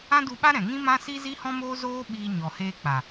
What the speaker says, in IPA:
ã˦ d u˧ ɓ a˦ ɾ ɛ̃˨ ŋ ĩ˦ m ã˦ s i˦ z i˦ h ɔ̃˦ m oː˦ z oː˦ ɓ iː˧ ɲ ɔ˨ h eː˧ k͡p a˨

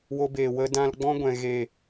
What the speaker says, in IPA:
w o˧ b eː˨ w ə˧ d ã˦ l ɡ͡b ɔ̃˦ ɡʷ ɛ̃˨ ɣ e˦˨

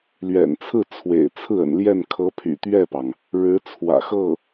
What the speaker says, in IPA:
l ɥ ɛ̰˨˩ n t͡sʰ ɹ̩˥˩ t͡sʰ w ḛ˨˩ ɪ̯ t͡sʰ ɹ̩˥˩ ə̰˨˩ n l j ɛ˥˩ n kʰ ɤ˧˥ pʰ y̰˨˩ t̪ ɥ ɛ˥˩ p ɑ˩ ŋ | ɻ ɻ̩˧˥ t͡sʰ w ä̰˨˩ x ɤ˥˩

